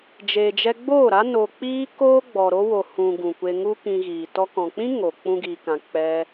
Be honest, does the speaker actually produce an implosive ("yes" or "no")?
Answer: no